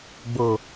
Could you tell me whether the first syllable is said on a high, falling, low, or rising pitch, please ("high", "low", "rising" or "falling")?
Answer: low